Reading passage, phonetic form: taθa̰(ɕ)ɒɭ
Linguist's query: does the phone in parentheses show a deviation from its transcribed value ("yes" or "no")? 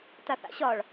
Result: no